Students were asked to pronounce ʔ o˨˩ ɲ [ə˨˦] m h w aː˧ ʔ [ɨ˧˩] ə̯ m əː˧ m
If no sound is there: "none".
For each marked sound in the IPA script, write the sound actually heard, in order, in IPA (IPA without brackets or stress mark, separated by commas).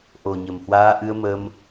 ə˨˩, ɨ˧